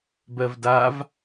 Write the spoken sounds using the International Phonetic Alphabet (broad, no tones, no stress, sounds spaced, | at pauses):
b ɜ v d a v